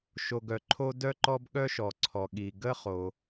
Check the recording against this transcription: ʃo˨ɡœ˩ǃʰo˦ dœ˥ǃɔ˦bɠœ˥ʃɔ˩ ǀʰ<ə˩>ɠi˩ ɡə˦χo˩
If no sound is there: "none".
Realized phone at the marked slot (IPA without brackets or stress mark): ɔ˩